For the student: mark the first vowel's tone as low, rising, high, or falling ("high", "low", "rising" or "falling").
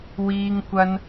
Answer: high